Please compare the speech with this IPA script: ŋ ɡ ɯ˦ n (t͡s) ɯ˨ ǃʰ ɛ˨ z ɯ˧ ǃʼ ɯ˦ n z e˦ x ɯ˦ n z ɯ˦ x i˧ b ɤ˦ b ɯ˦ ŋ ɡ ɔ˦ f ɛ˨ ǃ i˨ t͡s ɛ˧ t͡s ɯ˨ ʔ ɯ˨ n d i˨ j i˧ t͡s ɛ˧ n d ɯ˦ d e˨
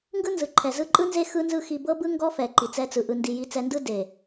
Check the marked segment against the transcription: incorrect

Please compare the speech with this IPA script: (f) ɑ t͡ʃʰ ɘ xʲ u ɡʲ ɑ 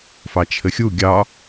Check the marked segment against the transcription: correct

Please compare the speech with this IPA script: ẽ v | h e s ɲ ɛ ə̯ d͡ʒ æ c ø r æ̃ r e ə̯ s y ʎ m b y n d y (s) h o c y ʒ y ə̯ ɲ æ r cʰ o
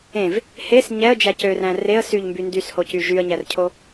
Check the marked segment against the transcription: correct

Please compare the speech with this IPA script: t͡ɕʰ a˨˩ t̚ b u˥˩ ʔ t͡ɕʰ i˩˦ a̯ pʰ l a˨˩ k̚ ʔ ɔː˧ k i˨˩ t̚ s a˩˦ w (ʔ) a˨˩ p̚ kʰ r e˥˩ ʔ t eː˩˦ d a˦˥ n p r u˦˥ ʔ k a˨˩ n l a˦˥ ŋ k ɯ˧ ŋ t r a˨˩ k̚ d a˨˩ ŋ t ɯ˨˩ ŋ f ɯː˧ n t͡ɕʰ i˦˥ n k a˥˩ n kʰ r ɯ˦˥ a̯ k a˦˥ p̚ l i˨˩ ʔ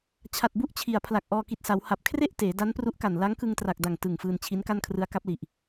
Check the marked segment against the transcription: incorrect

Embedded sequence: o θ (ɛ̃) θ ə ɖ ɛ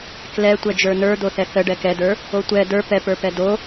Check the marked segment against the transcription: incorrect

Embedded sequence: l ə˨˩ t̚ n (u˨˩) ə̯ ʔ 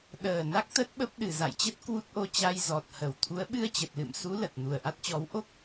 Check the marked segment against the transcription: correct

